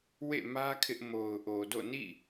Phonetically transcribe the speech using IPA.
w ḛ˦˨ m ä˦ kʰ ɪ˦ ʔ m o˨ ʊ̯ ʔ o˨ d o̰˦˨ n ḭ˦˨

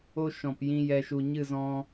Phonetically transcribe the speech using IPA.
o˦ ʃ ɔ̃˨ p j ĩ˧ j ɛ˧ ʃ u˨ ɲ ɨ˦˨ z ɔ̃˧

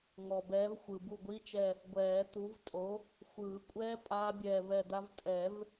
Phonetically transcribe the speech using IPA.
ŋ ɔ˨ b ɛː˨˥ v xʷ ɯ˨ b u˦˨ ɡʷ i˧˥˧ t͡ʃ ɛ˦˨ | ɡʷ ɛː˨˩˦ t̪ u˨˥ v tʼ o˨˥ | xʷ ɯː˨˩˦ kʷʼ ɛː˦˥ pʼ aː˦˥ bʲ ɛː˦˨ v ɛ˦˨ d̪ a˦˥ v tʼ ɛ˨˩˦ v

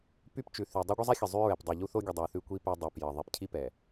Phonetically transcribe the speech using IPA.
p y˦ p t͡ʃ ʉ˨ θ y˨ dˤ o˦ ɡʷ ɘ˦ zˤ ɛ˦ xʲ ə˨ zˤ y˦ ɹ ɛ˨ p dˤ e˨ ʎ u˦ θ o˦ ɡʲ ə˨ dˤ y˨ θ ʉ˦ kʷ i˦ p e˦ dˤ ɘ˨ p j ə˨ ðˤ i˨ p cʰ i˦ p ɛ˨

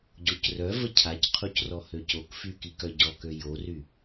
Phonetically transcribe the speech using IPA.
ɟ o c r œ v ə cʰ a c qʰ u c r ɔ h ø c o k f y k i k œ ɟ ɔ k ø j o r y

